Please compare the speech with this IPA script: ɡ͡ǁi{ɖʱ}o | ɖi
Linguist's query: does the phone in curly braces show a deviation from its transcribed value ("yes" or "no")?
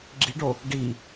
yes